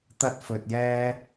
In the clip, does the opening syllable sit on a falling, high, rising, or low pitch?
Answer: high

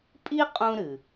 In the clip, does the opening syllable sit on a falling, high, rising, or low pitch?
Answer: high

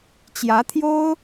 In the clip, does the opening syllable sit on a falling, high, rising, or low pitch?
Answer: rising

